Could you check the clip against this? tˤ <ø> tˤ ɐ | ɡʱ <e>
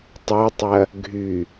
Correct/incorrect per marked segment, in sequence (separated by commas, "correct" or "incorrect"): correct, incorrect